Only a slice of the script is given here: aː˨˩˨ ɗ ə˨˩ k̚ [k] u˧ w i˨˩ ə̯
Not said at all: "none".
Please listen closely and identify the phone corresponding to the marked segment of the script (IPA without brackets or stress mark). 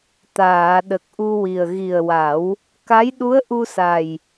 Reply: ʔ